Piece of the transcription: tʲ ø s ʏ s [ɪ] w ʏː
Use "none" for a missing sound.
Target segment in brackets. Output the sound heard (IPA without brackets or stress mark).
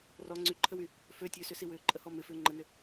i